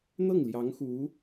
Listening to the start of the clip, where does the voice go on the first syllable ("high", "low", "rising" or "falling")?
falling